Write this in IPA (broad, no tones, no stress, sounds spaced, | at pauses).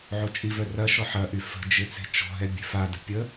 ʕ o t͡ʃʼ i v œ r ɐ ʃ ɔ ħ ɐ ʔ y f ə̤ d͡ʒ ɪ t͡s e̤ t͡ʃ ɔ̤ ɦ ɛ bʲ e̤ f a d ə̤ pʲ ə